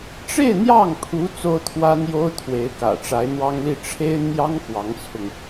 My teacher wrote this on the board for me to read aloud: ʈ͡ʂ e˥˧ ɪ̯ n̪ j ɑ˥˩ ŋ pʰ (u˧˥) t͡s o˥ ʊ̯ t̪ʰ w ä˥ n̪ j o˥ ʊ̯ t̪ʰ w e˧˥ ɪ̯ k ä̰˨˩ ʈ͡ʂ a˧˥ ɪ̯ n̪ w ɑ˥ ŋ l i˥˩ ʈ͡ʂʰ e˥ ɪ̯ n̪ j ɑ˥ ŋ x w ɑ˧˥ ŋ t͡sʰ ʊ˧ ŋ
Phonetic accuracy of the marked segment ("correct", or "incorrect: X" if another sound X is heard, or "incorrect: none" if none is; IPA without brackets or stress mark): correct